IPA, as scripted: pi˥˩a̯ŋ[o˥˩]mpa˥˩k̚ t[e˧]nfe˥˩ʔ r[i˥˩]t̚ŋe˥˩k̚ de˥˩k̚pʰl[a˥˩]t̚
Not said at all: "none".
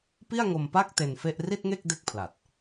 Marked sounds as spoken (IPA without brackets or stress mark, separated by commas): o˧, e˧, i˥˩, a˨˩